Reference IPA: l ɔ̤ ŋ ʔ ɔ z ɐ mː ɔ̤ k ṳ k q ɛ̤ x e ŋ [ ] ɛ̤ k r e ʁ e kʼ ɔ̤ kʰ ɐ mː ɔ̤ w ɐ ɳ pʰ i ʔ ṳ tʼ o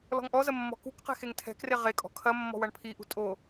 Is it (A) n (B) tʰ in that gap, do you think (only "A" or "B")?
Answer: B